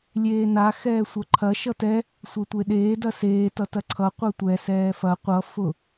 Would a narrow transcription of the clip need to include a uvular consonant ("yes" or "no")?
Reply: yes